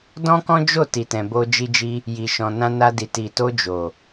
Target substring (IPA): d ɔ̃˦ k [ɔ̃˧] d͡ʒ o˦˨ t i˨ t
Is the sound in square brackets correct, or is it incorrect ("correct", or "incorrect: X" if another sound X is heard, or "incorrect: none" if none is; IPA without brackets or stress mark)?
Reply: incorrect: ɔ̃˦